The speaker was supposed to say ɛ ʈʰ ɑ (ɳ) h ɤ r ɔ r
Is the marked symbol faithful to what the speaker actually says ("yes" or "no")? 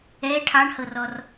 yes